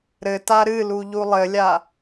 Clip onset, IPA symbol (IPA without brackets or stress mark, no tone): ɾ